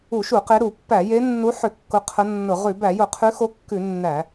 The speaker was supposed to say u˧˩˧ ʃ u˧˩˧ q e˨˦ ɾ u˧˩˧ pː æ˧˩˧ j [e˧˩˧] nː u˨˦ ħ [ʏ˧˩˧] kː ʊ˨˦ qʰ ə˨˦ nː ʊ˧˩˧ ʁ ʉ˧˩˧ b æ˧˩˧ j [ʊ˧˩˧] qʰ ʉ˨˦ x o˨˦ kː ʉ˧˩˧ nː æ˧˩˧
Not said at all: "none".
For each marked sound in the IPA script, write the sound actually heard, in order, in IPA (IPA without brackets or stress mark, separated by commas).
e˨˦, ʏ˧˩˧, ʊ˧˩˧